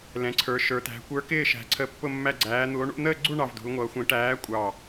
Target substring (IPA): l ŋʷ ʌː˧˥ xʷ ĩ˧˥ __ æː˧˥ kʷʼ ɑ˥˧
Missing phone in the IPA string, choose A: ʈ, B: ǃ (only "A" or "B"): A